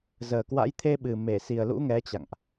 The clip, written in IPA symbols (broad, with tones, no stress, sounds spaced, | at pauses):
z əː˨˩ k w a̰˧˥ j t̪ʰ e˧ ɓ ɨ˨˩ m e˧˩ s i˨˩ ə̯ l ṵ˧˥ ŋ ɛ˨˦ t͡ɕ a̰˧˨ ŋ ʔ